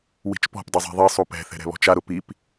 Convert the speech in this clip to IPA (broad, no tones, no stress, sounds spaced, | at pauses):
w i̤ t͡ʃ p ɔ̤ p dˤ ʊ zˤ ɛ̤ ðˤ i sˤ u p ɛ̤ θ ɛ̤ ɾ ɛ̤ β ɔ̤ t͡ʃ a ɾ ʊ p i p